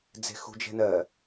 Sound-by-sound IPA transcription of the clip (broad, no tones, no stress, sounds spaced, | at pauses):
d͡z e̤ x ṳ d͡ʒ ɛ̤ n ɜ